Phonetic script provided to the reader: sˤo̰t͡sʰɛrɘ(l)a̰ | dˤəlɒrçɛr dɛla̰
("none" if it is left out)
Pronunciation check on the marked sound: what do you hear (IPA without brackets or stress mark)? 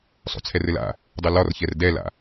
l